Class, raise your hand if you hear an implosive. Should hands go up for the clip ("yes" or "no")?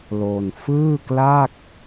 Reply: no